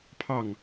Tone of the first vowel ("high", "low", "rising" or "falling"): falling